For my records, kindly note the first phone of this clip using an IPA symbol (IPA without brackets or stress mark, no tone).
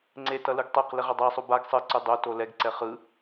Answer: ŋ͡ǀ